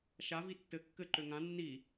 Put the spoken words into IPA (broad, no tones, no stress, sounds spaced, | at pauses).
ʃ a v i tː ɘ kː ɘ ǃ ø ŋ ã nː i